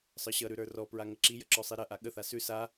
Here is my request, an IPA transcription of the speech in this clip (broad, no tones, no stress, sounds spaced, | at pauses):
sˤ ə˞ ɕ ʌ ɾ ʉ ɾ ə˞ r ɔ p ɹ a ŋ ə ǁ i j ə ǁ ɔ sˤ i ɾ ɐ ʔ a ɠ ə θ a s ʉ s a